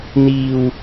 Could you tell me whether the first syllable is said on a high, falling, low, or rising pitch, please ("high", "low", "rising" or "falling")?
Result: low